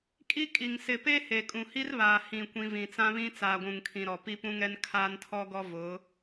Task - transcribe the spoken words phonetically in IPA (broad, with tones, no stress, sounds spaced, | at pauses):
kʼ i˦ kʼ i˨ ŋ s ɪ˨ p e˦ h e˨ kʼ ũ˨ h i˦ r β aː˨ h ĩ˦˨ kʷ ĩ˦ v ĩ˨ t͡s ã˦ β ĩ˦ t͡s aː˨ ɡʷ ũ˨ ŋ kʰ ĩ˨ ɾ ɔ˨ p i˦ p ũ˦ ŋ ɛ˦ n kʰ aː˦ n tʰ ɔ˦ ɡ ɔ˦ v ʊ˨˦